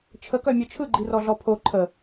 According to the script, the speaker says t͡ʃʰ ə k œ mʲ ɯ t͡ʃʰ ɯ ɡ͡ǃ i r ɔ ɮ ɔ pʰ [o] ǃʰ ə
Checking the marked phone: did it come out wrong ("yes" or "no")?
no